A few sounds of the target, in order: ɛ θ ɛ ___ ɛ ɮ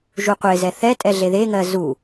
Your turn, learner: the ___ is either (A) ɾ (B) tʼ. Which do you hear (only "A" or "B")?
B